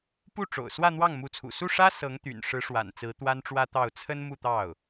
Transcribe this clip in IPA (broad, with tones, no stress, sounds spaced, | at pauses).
p u˥˩ ʈ͡ʂ o̰˨˩ ʊ̯ s w ä˥˧ n̪ w ɑ˥˩ ŋ m u˧˥ t͡sʰ ṵ˨˩ s u˥˩ ʂ ä˥ s ɤ˧˥ ŋ t̪ y̰˨˩ n ʂ ɻ̩˧˥ ʂ w a̰˨˩ n t͡s ɹ̩˧˥ t̪ w a˥ n ʈ͡ʂ w ä˥ t̪ ɑ˥˩ ʊ̯ t͡sʰ ə˥ n m u˥˧ t̪ ɑ˥˩ ʊ̯